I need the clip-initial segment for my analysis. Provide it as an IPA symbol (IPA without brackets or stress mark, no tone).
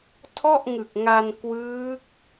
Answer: tʰ